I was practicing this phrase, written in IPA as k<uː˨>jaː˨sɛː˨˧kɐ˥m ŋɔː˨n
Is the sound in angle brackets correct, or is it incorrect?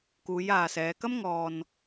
incorrect